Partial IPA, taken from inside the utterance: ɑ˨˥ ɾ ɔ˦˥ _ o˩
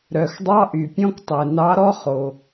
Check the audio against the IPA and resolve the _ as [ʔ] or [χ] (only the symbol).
χ